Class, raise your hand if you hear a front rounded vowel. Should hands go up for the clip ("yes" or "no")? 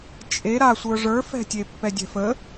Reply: no